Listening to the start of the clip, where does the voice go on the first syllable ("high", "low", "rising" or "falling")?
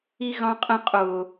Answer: high